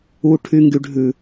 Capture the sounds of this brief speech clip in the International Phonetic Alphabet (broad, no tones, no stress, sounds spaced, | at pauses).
u ʈʰ y ŋ ɡ y ɖʱ ʉ